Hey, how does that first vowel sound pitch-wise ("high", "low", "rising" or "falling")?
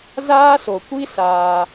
high